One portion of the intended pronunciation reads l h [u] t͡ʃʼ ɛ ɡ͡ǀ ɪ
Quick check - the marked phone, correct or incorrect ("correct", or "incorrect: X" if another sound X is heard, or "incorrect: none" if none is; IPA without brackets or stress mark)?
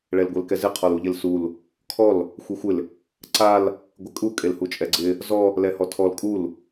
correct